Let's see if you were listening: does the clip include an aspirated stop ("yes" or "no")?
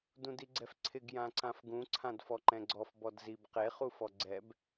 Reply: yes